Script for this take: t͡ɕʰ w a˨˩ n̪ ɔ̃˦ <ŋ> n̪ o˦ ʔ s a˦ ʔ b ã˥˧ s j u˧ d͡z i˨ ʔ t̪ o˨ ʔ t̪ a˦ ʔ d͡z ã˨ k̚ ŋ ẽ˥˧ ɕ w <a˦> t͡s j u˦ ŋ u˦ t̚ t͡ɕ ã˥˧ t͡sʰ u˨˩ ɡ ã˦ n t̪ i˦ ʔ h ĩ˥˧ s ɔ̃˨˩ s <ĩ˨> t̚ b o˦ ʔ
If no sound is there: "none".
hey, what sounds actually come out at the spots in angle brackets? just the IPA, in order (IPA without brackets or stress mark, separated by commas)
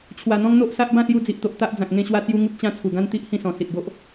ŋ, a˦, i˨